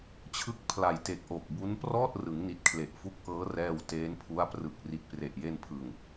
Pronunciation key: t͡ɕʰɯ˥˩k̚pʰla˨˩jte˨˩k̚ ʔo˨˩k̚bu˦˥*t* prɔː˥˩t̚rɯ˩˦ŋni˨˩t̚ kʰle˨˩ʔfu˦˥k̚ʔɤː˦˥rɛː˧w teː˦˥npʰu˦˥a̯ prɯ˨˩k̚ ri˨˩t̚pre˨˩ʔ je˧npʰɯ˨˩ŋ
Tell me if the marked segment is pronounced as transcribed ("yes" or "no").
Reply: no